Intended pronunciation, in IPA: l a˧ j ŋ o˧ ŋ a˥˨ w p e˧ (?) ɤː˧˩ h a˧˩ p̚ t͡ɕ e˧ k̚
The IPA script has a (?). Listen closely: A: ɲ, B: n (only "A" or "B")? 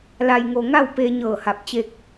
A